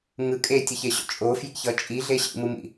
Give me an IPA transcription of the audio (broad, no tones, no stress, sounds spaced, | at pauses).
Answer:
ŋ ɯ kʼ e tʲ ʌ ç e ɕ o̰ t͡ʃʼ o f j ḭ ç ʌ t͡ʃʼ i ɮ e ɕ ḭ m ɯ m ḭ